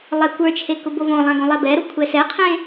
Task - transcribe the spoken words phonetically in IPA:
lˠ ɛ kʷ ə˞ t͡ʃʰ e k ʊ b o v õ lˠ ã ɡ õ lˠ ɛ b ɛ ɾ o kʷʰ ɛ s ɛ qʰ ẽ

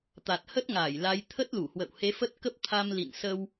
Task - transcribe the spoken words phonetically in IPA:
t̪ a˨˩ t̚ h ə˦˥ t̚ ŋ aː˧˩ j l a˨˦ j t̪ʰ ə˦˥ t̚ l u˧˩ h w ə̰˧˨ w h e˨˦ f ə˦˥ t̚ k ə˦˥ p̚ t̪ʰ a˧ m l ḭ˧˨ n s ə˧ w

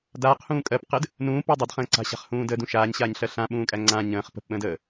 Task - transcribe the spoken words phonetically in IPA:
d aː q h ũː kʼ ɜ p q ɘ d | n ũː p u dˤ ɐ d χ ə̃ː ǀ a̤ ɕ a̤ χ h ũː d ə d ũ ʃ aː ɲ ɕ aː ɲ ɬ ɜ ɬ ã ɓ ũː kʼ æ ŋ͡ǀ ã ɲ ə̃ː χ p ə̤ p ɓ ə̃ː d əː

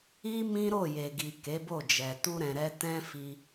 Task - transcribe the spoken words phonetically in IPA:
i˦ m ĩ˦ ɾ o˦˨ j e˨ ɡ i˨ k e˨˦ b o˦˨ d͡ʒ ɛ˨ t u˧ ɾ ɛ̃˨ ɾ ɛ˧ t ɛ̃˦ f i˧

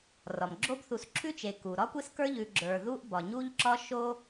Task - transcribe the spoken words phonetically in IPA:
r ɒ˩ m ɡ͡ǁ o˦ b θ u˨ s ǁʰ ʉ˦ t͡ʃ e˩ k u˩ ɾ ɒ˥ kʷ e˦ s k ə˞˦ ʎ ʉ˨ ɡ͡ǁ ə˞˩ ð u˦ ʔ b ɒ˩ ɲ u˦ ʎ ǁ ɒ˦ ʃ o˦

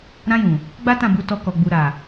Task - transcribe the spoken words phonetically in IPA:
ɾ ã˧ j ũ˨ | ɡ͡b a˦ t ã˦˨ b u˨˦ t ɔ˧ k ɔ˨ ɡ͡b u˨ ɾ a˨

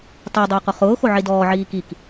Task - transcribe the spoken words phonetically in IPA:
tˤ u dˤ ʊː q ʊ χ ʊː x o ʕ i d ɔː ʕ iː k i k

